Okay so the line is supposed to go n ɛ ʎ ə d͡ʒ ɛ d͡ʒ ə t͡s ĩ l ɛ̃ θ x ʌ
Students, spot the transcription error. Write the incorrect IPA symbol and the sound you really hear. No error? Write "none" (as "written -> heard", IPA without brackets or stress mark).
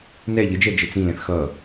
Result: none